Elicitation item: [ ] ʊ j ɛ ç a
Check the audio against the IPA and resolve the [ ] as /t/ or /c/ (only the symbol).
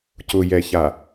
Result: c